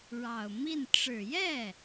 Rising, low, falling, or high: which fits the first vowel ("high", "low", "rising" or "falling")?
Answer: low